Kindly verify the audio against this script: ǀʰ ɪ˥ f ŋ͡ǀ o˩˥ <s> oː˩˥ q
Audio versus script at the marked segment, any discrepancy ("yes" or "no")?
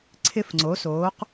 no